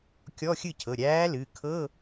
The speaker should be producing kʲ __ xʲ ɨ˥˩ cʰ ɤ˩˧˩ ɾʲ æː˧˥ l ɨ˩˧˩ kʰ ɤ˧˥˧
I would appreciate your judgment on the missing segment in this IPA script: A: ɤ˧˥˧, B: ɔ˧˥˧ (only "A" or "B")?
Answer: B